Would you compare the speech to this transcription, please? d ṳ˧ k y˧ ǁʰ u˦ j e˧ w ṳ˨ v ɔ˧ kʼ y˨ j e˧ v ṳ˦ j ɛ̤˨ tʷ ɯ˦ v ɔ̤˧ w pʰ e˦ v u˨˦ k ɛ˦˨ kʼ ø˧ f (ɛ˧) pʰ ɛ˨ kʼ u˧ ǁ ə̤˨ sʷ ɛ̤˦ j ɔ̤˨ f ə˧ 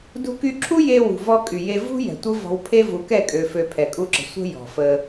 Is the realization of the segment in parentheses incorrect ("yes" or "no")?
yes